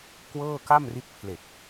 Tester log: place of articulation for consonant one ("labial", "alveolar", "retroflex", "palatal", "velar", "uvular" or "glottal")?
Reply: velar